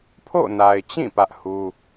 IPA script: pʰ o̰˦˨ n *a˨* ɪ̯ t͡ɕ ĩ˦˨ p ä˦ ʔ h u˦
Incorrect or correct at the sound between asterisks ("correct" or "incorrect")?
correct